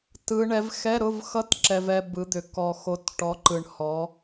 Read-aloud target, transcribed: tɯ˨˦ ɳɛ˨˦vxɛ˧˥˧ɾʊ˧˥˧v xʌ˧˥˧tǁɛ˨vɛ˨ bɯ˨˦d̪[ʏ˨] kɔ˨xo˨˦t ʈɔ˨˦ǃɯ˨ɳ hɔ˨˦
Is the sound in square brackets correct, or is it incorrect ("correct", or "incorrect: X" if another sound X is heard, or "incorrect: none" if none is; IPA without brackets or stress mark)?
correct